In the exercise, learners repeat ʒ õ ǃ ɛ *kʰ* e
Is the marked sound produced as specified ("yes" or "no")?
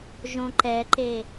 no